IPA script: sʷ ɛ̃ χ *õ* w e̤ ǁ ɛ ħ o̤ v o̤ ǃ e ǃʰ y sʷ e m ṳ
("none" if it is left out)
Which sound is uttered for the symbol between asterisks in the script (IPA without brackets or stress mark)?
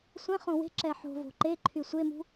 õ